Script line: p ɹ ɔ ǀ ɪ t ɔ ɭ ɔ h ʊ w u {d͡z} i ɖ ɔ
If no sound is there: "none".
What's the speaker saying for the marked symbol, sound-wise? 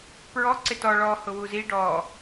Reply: z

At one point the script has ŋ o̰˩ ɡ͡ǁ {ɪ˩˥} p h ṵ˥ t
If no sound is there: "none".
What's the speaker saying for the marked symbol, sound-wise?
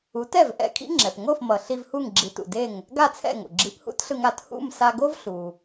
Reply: i˩˥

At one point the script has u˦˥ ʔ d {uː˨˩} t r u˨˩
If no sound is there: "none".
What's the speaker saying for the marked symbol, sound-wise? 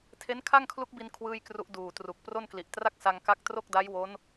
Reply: uː˨˩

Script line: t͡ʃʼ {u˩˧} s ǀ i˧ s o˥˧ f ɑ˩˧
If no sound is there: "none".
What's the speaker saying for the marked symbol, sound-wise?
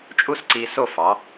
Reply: u˥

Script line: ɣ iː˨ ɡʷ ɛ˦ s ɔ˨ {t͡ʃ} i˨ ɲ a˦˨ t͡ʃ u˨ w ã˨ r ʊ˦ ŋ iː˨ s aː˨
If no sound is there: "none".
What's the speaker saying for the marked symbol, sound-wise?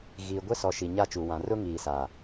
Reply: ʃ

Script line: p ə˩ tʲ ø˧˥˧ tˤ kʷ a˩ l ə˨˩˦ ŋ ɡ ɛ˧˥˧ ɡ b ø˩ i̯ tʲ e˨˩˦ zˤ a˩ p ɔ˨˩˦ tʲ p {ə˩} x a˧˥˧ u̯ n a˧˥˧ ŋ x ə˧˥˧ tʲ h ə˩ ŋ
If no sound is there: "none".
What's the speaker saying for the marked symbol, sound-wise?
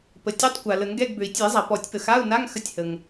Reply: ə˩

